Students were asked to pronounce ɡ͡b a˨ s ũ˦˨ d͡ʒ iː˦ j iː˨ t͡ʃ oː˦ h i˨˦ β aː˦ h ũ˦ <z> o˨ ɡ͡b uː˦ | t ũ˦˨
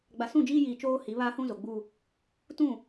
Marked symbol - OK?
yes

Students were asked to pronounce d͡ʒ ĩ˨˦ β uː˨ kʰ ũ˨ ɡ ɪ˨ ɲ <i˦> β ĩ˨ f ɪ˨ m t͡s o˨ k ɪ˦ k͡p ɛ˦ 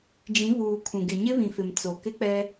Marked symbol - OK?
no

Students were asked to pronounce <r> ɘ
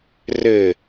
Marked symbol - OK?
yes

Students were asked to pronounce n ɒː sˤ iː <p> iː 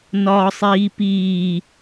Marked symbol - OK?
yes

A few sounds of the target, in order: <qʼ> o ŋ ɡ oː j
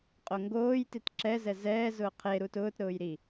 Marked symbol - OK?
yes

